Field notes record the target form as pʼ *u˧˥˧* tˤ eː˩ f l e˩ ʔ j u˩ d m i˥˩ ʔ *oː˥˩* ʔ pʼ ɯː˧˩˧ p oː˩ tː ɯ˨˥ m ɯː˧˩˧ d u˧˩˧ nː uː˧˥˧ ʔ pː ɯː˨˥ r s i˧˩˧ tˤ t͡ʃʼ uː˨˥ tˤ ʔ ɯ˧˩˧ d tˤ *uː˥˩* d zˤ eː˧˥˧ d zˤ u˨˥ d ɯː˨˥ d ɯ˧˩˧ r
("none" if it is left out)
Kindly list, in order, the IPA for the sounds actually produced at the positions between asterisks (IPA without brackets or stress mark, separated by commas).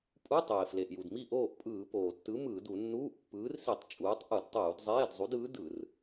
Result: u˧˥˧, oː˥˩, uː˧˩˧